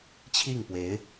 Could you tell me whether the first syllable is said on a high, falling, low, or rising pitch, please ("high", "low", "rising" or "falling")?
falling